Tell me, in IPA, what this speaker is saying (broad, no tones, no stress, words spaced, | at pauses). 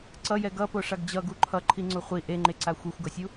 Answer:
ǀʌjɛ ɡʌpoʂaɡ d͡ʑʌɡu ǃʰʌǃʰiŋ͡ǀu χʷi ʔeŋ͡ǃeǀa xʷexʷɡʌsʲu